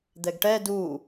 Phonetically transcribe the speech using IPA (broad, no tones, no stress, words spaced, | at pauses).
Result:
d̪ɛɡʈɛ du